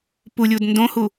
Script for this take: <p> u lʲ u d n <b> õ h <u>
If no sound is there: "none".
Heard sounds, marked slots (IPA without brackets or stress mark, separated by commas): p, d, u